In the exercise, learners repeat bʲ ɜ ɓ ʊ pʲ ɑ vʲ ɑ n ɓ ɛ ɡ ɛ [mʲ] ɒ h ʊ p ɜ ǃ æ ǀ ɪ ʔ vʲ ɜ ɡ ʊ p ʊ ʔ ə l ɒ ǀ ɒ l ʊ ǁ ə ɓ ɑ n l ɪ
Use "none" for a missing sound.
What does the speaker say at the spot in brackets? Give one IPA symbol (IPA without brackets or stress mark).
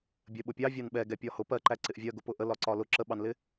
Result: pʲ